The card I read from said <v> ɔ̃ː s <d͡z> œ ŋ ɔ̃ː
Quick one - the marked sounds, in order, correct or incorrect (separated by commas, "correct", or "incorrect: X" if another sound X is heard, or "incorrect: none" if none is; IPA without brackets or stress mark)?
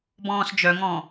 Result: incorrect: b, incorrect: d͡ʒ